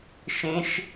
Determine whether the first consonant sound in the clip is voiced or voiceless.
voiceless